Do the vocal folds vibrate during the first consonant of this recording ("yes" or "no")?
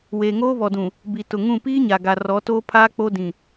yes